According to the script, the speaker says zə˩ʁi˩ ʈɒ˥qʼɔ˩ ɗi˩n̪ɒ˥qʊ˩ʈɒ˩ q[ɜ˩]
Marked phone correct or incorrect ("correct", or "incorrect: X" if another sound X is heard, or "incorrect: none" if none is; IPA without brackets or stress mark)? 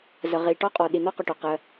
correct